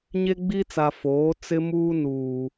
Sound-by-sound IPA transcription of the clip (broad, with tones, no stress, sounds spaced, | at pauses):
ɲ e˦ ɡ͡b i˦ t͡s a˨ f oː˨˦ t͡s ɪ˦ m uː˦ n uː˨